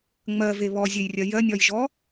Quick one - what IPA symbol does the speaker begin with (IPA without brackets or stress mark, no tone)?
ŋ͡m